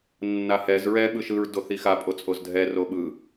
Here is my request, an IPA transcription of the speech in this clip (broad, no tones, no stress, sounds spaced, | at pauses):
nː a h ɛ z ɹ ɛ ɓ ɯ ʃ ɯ ɹ d o θ i x a pʼ o t͡sʼ o z dʱ ɛ r o ɓ ɯ